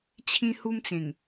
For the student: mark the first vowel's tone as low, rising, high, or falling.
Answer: high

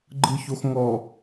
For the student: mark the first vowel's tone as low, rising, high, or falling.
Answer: low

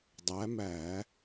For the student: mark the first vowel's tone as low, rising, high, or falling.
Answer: rising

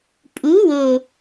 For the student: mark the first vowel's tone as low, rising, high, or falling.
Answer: rising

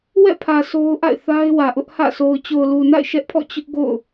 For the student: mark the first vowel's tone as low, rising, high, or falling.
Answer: falling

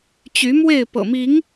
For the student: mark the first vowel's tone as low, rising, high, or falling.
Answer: rising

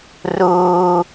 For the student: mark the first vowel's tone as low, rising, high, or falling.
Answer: high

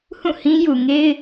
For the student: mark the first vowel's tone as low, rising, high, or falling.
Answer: falling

